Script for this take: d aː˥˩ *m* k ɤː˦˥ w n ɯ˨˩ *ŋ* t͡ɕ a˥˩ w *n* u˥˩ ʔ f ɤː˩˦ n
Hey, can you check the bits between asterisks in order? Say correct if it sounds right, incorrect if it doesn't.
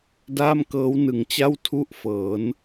correct, correct, incorrect: tʰ

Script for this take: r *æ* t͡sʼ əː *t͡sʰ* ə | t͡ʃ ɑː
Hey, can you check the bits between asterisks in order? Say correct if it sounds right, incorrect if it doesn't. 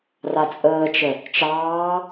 incorrect: a, incorrect: t͡ʃ

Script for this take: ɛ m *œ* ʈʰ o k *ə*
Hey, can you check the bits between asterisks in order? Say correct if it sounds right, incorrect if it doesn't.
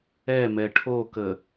incorrect: ɛ, correct

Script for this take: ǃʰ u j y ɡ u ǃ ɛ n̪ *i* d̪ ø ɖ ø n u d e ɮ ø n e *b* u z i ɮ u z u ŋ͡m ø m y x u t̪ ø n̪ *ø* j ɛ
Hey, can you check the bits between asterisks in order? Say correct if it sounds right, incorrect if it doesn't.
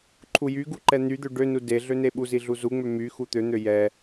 incorrect: y, incorrect: ɓ, correct

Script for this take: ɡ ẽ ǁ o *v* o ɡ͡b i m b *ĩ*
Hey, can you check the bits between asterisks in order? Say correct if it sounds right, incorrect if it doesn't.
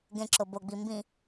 incorrect: b, correct

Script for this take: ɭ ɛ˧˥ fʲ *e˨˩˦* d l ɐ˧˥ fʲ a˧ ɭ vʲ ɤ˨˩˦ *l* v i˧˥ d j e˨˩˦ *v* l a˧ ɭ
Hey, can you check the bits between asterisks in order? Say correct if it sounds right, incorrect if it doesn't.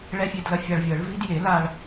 incorrect: e˧, incorrect: ɭ, incorrect: none

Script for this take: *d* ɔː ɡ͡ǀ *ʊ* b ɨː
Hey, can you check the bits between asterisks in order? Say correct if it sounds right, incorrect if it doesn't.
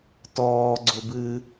incorrect: t, correct

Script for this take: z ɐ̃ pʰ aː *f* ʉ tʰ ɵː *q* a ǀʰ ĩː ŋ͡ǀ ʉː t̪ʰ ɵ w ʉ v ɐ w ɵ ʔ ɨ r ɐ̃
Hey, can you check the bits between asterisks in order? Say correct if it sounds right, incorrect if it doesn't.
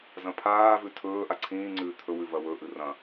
incorrect: v, incorrect: ʔ

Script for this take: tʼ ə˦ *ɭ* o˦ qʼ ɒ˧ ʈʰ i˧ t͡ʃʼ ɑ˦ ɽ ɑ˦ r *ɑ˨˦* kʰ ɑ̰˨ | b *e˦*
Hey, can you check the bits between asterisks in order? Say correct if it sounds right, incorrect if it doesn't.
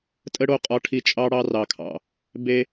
incorrect: ɽ, incorrect: ɑ˨, correct

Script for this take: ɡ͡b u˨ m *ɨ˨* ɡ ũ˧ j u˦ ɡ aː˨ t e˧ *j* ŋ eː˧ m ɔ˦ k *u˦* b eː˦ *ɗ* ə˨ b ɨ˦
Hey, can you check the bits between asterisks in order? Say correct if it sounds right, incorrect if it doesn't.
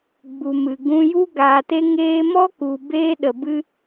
correct, incorrect: none, incorrect: u˨, correct

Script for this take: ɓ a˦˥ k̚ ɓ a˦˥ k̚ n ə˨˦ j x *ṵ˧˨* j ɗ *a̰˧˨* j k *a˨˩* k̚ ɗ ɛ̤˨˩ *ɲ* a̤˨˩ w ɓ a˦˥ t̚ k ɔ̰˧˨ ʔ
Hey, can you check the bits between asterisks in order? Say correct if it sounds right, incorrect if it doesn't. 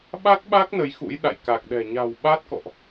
incorrect: ṵ˧˥, correct, correct, correct

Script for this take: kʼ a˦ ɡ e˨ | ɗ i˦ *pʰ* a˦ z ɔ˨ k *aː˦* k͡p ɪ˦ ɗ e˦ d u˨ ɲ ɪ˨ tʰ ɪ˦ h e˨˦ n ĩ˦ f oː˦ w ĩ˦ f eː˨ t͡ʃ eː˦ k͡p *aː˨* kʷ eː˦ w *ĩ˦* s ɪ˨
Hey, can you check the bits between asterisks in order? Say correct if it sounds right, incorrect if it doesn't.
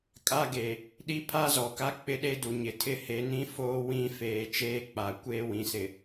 correct, incorrect: a˦, incorrect: a˨, incorrect: ĩ˨

